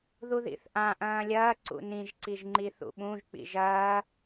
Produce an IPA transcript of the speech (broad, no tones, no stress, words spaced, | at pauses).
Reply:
ðuðḭθʔã ʔɐ̃ːlʲɐː ǀṵnĩʒ ǀiʒŋ͡ǃiθṵɓũʒ k͡pḭʒɐː